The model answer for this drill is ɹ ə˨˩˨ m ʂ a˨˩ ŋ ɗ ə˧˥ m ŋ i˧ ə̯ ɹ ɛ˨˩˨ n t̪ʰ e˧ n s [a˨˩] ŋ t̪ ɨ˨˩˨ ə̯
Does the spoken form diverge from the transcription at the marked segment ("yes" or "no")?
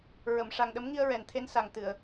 no